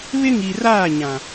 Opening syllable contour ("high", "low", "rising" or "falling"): high